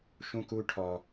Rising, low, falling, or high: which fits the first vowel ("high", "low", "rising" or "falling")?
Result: high